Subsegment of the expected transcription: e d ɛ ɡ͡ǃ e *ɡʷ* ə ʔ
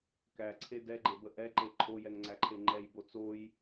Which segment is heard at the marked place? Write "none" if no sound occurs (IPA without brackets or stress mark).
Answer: b